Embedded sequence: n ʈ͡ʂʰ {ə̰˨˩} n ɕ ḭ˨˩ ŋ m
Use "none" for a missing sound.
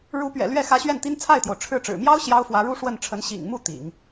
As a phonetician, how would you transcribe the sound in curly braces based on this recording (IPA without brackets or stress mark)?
ə˧˥